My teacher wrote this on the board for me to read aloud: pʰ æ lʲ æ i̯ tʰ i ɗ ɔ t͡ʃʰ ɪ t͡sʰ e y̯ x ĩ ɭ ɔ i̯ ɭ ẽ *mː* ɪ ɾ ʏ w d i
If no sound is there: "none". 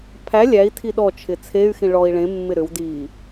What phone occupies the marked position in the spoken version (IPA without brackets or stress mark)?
mː